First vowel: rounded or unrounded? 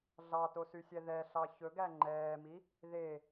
unrounded